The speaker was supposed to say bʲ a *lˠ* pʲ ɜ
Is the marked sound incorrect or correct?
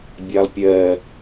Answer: correct